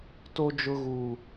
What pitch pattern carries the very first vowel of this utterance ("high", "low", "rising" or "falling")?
high